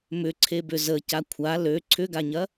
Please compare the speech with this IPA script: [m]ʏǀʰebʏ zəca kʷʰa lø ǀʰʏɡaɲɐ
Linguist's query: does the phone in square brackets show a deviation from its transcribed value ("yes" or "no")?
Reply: no